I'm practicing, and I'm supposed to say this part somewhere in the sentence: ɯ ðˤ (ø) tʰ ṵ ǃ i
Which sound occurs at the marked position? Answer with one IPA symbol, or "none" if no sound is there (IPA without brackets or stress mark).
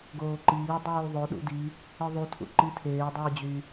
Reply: u